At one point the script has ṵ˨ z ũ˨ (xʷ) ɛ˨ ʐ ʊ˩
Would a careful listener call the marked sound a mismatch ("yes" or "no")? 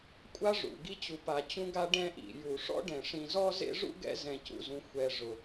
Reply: no